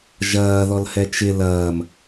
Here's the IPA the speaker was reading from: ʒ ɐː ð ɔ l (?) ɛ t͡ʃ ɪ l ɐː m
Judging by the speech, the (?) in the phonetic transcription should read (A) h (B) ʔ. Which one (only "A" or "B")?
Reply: A